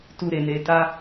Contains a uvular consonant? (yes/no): no